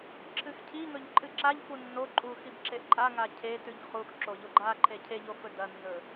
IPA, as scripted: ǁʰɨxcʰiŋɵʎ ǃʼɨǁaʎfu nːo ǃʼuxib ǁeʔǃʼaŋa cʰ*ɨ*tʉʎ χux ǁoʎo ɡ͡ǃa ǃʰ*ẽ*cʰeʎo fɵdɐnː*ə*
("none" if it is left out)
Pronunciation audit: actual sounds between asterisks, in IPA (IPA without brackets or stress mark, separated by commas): e, e, ɵ